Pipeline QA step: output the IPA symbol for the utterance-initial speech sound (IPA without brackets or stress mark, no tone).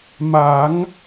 m